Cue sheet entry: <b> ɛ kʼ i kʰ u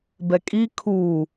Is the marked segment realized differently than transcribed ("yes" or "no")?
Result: no